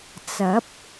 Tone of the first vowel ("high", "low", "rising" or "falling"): rising